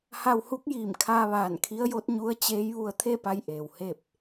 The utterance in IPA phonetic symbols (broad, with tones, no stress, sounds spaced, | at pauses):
h a˧ w h u˧˥ k̚ j iː˧˩ m kʰ aː˧ ʋ aː˧˩ n kʰ i˧˥ ə̯ j o˧˥ t̚ ɲ u˧˥ ə̯ t͡ɕ eː˧˥ j ʋ u˧ ə̯ t̪ʰ e˥˨ p a˧ j ʔ eː˩ w h e˥˨ p̚